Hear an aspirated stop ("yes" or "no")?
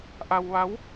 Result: no